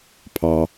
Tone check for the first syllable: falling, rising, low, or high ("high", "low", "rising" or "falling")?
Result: low